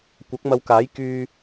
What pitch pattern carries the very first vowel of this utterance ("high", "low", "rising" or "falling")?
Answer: rising